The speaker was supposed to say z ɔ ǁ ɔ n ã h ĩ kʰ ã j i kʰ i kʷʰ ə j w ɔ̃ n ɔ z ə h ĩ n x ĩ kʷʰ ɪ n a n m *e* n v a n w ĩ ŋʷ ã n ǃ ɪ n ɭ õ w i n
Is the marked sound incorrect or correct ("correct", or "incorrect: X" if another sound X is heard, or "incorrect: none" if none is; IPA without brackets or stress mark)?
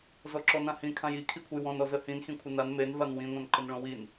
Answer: correct